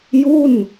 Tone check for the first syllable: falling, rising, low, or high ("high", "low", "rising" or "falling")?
falling